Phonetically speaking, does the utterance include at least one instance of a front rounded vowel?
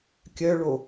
yes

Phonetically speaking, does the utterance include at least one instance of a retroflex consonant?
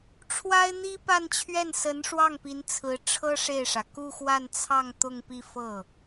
yes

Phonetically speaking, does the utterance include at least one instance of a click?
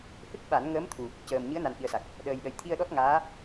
no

